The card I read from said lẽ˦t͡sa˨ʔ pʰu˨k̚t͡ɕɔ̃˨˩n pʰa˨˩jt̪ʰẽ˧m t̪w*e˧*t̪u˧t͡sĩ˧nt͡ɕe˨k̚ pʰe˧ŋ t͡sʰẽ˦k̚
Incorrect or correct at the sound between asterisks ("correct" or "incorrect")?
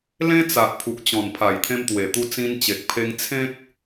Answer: incorrect